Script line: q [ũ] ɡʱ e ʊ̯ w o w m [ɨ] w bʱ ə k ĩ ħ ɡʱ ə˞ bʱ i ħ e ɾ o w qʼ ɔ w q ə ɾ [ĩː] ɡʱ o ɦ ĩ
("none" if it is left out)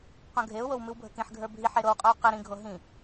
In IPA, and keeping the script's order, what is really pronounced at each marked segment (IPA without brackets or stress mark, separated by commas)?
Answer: õ, ɨ, ĩ